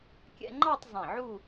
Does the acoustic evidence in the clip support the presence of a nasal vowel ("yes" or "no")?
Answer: yes